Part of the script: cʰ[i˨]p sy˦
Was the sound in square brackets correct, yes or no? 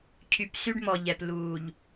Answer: no